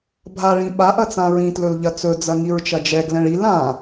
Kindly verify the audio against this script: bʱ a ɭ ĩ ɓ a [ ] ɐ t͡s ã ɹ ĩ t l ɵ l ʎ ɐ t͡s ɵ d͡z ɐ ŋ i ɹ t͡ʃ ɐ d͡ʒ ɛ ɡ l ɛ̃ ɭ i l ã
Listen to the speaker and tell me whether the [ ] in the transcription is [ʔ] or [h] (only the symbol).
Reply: ʔ